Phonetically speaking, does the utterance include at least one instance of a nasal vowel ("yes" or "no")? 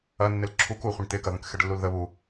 yes